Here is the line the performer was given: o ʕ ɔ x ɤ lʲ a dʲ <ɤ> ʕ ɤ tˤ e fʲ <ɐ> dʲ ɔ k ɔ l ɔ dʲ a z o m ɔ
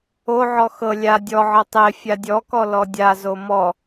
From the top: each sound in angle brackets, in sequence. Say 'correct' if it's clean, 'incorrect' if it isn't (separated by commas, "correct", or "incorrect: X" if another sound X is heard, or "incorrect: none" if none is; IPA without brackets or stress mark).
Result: incorrect: ɔ, incorrect: a